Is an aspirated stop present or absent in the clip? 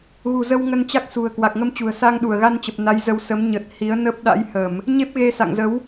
absent